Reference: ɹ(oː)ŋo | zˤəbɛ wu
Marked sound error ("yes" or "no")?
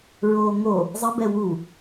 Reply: no